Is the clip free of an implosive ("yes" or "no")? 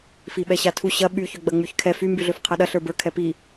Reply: no